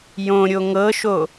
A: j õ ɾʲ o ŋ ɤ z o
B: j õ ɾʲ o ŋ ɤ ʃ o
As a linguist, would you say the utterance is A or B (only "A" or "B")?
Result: B